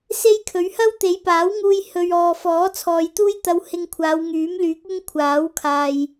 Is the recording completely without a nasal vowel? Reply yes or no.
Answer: yes